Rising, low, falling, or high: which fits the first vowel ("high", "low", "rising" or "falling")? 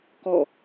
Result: falling